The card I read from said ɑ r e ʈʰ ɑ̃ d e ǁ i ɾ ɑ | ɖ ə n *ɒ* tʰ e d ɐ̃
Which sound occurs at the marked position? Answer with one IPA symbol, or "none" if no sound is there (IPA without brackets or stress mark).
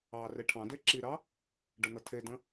ʌ